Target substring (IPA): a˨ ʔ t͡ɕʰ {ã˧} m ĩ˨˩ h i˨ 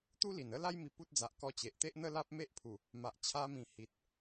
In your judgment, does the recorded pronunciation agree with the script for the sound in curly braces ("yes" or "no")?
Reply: no